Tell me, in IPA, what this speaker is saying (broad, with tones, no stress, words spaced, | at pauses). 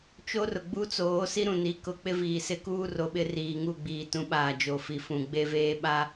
t͡ʃo˦rʊ˨ɡ͡bu˦t͡soː˨˦ si˦ɾũ˨ni˨˦ kʊ˨ k͡pɪ˦viː˨ sɪ˦kuː˦ro˨ɓɪ˦ riː˨ŋu˦˨ɡ͡biː˨tũ˨˦ ɓaː˨d͡ʒo˨fi˨ fũ˨ ɡ͡be˦veː˦ ɓa˦